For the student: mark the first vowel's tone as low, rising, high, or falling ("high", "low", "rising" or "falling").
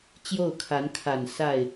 falling